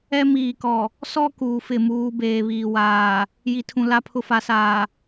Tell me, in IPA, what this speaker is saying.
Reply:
ɛ˦ miː˨kɔ˨ | sɔ˦ kuː˨fɪ˦˨muː˦ beː˨βiː˨waː˨ | ji˨tʰũ˨ la˦pʰʊ˦fa˨˦saː˨

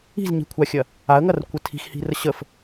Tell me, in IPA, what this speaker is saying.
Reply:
i̤zɲi̤kʷʰaxʲɐ | aə̯ŋɐrkʷə tʰi̤xhi̤rə ɕəf

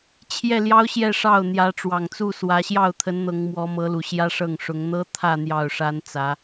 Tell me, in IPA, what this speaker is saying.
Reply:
t͡ɕʰjɛ˥˩ljɑ˥ʊ̯ɕjɛ˥˧ʂɑ˥˩ʊ̯ n̪jä˧˥ ʈ͡ʂwɑ˨˩ŋt͡su˥˩swä˧˥ ɕjɑ˥˩ʊ̯t̪ʰə˧˥n n̪ɤ˧˥ŋmwɔ˧˥mɤ˧˥lu˨˩ ɕjä˥ʂɤ˥˩ŋʂʊ˧˥ŋ n̪ɤ˥ t̪ʰä˥˧ n̪jɑ˥˩ʊ̯ʂa˥nt͡sä˧˥

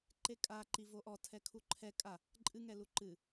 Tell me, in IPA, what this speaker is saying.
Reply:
ǃekʼa ǃivoʔɔ tʰɛkʰuǃʰɛ kʼa | ǃʼɨ ŋɛluǃɨ

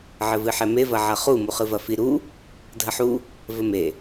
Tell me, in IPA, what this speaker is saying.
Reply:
ʕɘvɨħɛme vɐʕɐχu muχɨvɐfi ɾu | dʱɐħu | vɘme

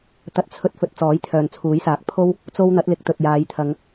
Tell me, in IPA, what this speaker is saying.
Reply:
t̪ɐ˧t̚t͡sʰɵ˧t̚fɵ˨˥t̚ t͡sɔː˨˥jt̪ʰœː˨nt͡sʰuː˨˥jsaː˨˥k̚ pʰo˥w | t͡so˥w n̪ɐ˨˥t̚lɪ˨˥k̚t̪ɵ˨t̚ jaː˨˧jt̪ʰɐ˨˧ŋ

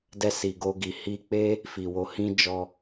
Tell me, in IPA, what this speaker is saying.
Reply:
dɛ˧si˨ɡo˧ ɡi˨ hi˧k͡pe˦ | fi˨wo˧ hĩ˦ d͡ʒɔ˦

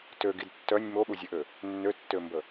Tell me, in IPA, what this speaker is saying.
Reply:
tøɡid tːœnʲ moɠuzʲøʔø | nːøtːømbə

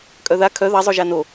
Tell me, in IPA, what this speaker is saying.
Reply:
kʼœða kʰœ ðazˤoʒa no

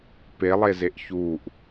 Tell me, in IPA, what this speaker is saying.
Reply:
pelˠezeʔ çuʔ

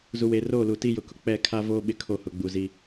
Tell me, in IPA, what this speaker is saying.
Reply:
zu˨weː˨roː˦˨ lu˨ ti˦jʊ˨kʊ˨ k͡pɛ˦˨kʰa˦voː˦ ɓɪ˦kʰo˦˨hʊ˨ɡ͡bu˨ zi˨

